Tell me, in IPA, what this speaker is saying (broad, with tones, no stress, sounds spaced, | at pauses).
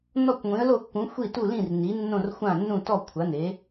n ɔ˧˩ kʷ ŋʷ ĩ˩˧ ə̯ l o˧˩ kː ũ˩˧ xʷ i˧˩ t u˧˩ l ĩ˧˩ r n i˩˧ nː õ˧˩ r xʷ ã˧˩ nː ũ˧˩ t ɔ˧˩ kʷʰ a˩˧ n e˩˧